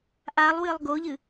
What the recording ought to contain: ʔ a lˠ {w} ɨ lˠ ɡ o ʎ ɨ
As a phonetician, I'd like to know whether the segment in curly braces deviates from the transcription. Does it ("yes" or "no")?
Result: no